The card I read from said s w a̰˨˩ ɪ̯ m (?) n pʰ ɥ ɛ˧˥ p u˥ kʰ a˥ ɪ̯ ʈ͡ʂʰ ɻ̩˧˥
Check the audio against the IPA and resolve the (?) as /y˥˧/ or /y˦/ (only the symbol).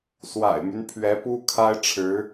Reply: y˦